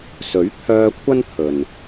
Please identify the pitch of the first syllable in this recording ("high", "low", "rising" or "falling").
rising